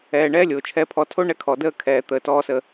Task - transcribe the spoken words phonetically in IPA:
ɛː˨ɳɛː˦lʲoː˨ t͡ʃʰɛ˨pʰɔ˨tʰo˦ ɳɛ˦kʰɔ˨ dəː˦kʰɛː˨t̪əː˨ tɔː˦səː˦

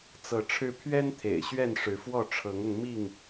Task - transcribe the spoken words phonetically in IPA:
t͡sɤ˨˦ ʈ͡ʂʰɻ̩˦ pʰɥɛ˦n t̪ʰḛ˨˩ɪ̯ɕɥɛ˥˨nʂɻ̩˨˦fwɔ˥˨ ʈ͡ʂʰɤ˨˦ŋʊ˧ŋ mi˥˨ŋ

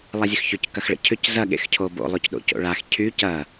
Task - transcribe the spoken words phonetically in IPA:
lˠazʲøxçʏc kɐxɭə̰cʰʏc zɐɠḛx cʰobo̰ lˠʊcɗo̰co̰ɭax cʰy cɐ

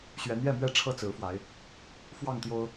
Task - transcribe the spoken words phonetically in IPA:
ɕɥɛ˨˦n̪jɛ˥˨mɥɛ˥˨ ʈ͡ʂʰɤ˥˨t͡sɹ̩˨˦fwa˨˦ɪ̯ | fwɑ˥˨ŋt̪jo˦ʊ̯

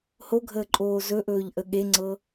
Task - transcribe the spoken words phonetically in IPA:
hoɡʱəːǃʼoː zɵʔɵːʎʔə ɠeŋ͡ǀɤ

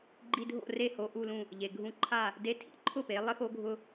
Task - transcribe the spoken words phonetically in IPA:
ɡ͡ǃi˧dʱo̰˥˩re˥˩ ho˧ʔu˥˩lũ˥˩ | ʎe˩ɡʱũ˥˩ ǃʰa˥˩ | de˧tʰḭ˩˥ǃʰʊ˥˩ pe˩˥lˠɪ˥xo˥ɡʱʊ˥

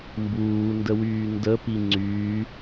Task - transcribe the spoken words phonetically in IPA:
mbuːndəwyː ndəpi ŋ͡ǀy

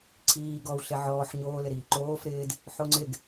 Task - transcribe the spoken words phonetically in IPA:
ǀʰiː ɡɔw ɬeʕɔːħ ɲoːlɪɾiː ǃoːf ɾɪːd | ħoŋ͡ǀɪɡ

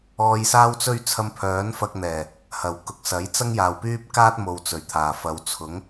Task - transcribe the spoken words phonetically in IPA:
ɔː˧jsaː˥wt͡sɵ˥ɥ t͡sʰɐ˧mpʰœː˨˥nfɐ˧k̚n̪ɛː˨˩ | hɐ˨˩wkʊ˨k̚sɐ˨˥jt͡sɐ˥ŋ jaː˨wpyː˥p̚kaː˥t̚ mo˨wt͡sɵ˨˩ɥt̪ʰaː˨˩ fɐ˨wt͡sʰʊ˨˥ŋ

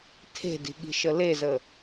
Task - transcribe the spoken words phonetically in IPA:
tʰe̤di̤ɠi̤ʃə lezə

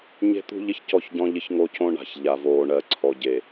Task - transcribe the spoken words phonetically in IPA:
ɲe̤˦t̪ṳ˦ʎɪ˦ç cɔ˦˨çɟɔ̃˦ ʎɪ˦çŋo˦cõ˦ ɳa̤˨ç ʎa˨voː˨ɳɜ˨ ǀʰɔ˨ ɟe˨

